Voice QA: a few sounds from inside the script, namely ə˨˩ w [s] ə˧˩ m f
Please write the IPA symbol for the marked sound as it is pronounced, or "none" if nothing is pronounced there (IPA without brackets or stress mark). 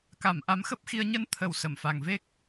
s